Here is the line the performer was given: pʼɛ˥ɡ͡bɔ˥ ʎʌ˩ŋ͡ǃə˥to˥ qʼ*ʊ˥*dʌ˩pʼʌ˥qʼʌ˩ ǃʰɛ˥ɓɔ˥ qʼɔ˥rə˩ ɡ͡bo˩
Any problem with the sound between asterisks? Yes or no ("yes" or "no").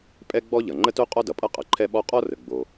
yes